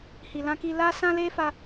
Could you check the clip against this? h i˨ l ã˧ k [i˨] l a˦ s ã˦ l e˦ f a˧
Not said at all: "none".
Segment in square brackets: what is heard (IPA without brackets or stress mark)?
i˧